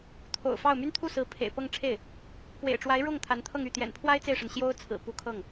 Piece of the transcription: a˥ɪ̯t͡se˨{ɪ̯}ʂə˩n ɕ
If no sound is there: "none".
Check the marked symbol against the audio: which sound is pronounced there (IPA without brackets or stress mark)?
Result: ɪ̯